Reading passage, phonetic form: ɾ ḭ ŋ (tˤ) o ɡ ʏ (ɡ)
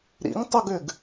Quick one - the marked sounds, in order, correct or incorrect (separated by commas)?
correct, correct